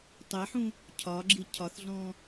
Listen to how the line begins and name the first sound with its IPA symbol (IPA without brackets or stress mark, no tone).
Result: tˤ